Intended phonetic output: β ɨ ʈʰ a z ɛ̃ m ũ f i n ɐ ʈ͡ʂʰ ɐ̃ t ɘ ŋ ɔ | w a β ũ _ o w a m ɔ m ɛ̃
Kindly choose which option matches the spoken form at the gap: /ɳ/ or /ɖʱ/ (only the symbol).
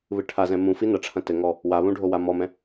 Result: ɖʱ